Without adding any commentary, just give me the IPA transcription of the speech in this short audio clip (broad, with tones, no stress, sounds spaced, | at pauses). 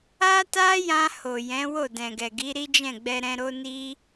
a˦ t a˦ j ã˧ h o˨ j ɛ̃˨˦ w o˦˨ d ɛ̃˨ ɡ ɛ˨ ɡ i˨˦ ɾ i˦ d͡ʒ ɛ̃˦˨ ɡ͡b ɛ˧ ɾ ɛ̃˧ ɾ o˦ n i˦